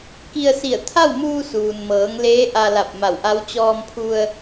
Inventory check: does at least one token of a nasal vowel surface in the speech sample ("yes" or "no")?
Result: no